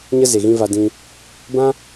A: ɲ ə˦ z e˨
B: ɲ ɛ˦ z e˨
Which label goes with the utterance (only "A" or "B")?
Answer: A